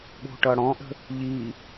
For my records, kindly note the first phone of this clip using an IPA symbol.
ɠ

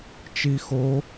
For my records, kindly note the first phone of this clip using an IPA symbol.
t͡ʃ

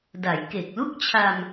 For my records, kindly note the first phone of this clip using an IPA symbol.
d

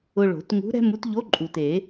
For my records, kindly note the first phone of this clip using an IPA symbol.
ʊ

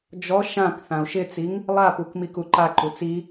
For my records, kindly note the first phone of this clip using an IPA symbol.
d͡ʒ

